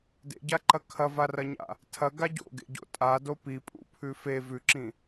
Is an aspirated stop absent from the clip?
no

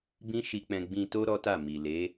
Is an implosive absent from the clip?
yes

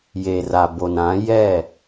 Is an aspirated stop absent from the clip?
yes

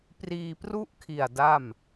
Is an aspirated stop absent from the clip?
no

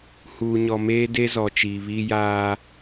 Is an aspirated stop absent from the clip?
yes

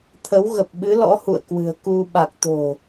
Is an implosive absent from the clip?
no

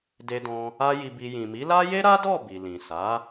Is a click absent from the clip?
yes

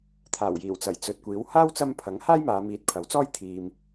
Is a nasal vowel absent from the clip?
yes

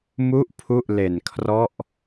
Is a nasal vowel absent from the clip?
yes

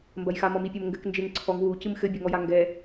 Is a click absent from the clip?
no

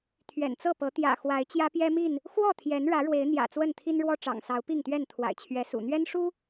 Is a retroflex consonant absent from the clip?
no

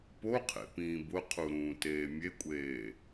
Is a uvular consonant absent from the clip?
no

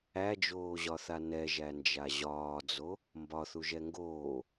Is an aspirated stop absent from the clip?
yes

